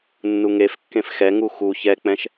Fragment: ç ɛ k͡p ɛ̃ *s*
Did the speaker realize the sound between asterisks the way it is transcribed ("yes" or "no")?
no